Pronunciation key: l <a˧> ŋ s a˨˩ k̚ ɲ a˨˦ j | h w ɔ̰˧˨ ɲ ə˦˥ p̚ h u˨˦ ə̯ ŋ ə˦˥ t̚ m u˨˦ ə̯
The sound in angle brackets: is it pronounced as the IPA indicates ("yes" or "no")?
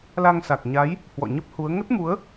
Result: yes